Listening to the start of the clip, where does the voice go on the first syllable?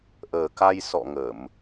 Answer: low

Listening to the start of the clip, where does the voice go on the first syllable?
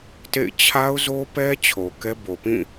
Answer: falling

